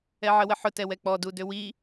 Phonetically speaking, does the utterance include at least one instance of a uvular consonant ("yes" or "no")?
no